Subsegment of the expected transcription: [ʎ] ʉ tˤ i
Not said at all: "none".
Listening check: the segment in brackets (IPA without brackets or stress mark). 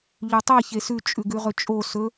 ʎ